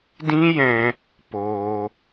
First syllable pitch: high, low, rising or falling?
high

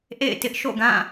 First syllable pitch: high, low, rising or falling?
falling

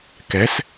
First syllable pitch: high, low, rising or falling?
rising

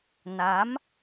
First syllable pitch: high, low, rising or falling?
rising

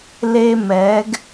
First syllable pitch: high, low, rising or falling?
high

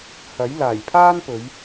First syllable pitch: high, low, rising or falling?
rising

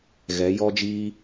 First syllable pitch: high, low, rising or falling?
rising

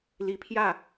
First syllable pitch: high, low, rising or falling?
rising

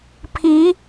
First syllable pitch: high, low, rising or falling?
rising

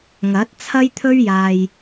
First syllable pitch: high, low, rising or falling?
rising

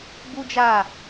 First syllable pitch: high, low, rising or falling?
high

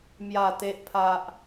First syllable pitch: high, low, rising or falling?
low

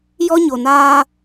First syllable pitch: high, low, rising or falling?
high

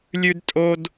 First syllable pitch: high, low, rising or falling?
high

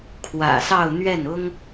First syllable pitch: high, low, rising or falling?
low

